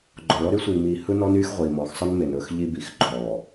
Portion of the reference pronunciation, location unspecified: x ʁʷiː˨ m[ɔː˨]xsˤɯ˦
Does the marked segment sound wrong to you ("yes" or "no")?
no